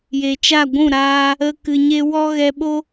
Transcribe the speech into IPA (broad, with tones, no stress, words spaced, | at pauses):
je˨t͡ʃa˦˨ɡʷũ˦˨ ɾaː˧ | ə˦kɨ˧ɲe˦ wɔ˦ɣɛ˧ ɓo˦